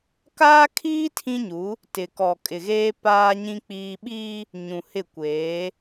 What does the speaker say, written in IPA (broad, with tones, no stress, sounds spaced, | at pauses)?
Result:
k aː˦ kʰ iː˦ tʰ ĩ˦ ɲ u˨˦ | t ɪ˨ k ɔ˨ kʼ ɪ˨ ɣ eː˦ p aː˦ ɲ ĩ˦ k͡p iː˦ ɓ iː˦ | ɲ ũ˨ h ɪ˦˨ kʷ eː˨˦